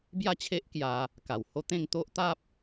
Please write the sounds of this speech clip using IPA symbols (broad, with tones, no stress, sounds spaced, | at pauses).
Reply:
b j a˥˧ t͡ɕʰ e˦ ʔ k j a˧ | k a˨˩ w h o˦ t̪ ẽ˥˧ ŋ t̪ o˦ ʔ t̪ a˦ p̚